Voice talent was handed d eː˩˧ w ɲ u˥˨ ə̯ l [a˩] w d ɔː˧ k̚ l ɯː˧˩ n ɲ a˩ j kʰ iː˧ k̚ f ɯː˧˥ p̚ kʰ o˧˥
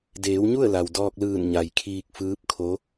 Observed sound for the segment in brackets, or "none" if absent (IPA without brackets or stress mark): a˩